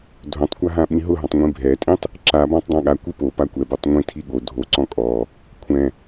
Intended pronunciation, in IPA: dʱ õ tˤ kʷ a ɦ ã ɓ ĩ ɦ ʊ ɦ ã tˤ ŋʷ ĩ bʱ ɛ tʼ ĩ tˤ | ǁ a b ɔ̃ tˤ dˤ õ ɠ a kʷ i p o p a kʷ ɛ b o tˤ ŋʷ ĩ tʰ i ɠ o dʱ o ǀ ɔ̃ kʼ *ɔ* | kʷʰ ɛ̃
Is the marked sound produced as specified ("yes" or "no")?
yes